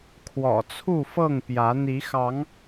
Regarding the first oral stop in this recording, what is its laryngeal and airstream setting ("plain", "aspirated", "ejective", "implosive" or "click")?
aspirated